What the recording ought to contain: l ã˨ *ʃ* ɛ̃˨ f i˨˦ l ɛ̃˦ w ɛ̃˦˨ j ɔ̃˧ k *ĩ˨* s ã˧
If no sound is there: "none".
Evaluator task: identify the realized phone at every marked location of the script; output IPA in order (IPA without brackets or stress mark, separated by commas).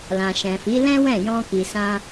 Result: ʃ, i˨